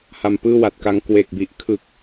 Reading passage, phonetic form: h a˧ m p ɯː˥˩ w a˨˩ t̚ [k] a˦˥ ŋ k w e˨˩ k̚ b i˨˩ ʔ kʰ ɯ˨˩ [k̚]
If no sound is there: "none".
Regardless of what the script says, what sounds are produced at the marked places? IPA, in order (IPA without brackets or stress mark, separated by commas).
k, k̚